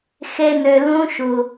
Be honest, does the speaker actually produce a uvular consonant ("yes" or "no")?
no